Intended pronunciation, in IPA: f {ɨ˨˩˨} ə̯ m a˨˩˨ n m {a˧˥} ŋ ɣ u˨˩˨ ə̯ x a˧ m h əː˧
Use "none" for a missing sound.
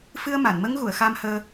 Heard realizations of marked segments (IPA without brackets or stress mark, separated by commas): ɨ˧, ə˧˥